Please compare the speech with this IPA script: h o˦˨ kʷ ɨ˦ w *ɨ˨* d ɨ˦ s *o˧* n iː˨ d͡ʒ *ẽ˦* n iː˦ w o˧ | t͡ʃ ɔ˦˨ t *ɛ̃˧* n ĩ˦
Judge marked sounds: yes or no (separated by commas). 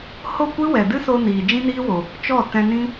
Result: no, yes, no, yes